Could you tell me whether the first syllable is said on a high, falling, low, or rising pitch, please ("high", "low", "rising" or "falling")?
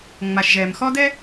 low